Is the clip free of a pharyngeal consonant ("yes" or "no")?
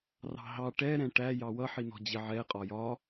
no